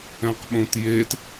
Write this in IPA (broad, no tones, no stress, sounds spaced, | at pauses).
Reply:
ɛ̃ q ɓ õ t j e t